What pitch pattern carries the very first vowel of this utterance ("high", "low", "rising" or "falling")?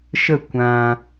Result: falling